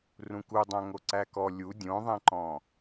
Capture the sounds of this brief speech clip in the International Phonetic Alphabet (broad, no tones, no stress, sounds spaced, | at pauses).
r ũ k u dˤ æ̃ ŋ o ǀ æ k ɔ lʲ u dʲ õ ðˤ ẽ ǃ ɔ̃